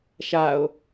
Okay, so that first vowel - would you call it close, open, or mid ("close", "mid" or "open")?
open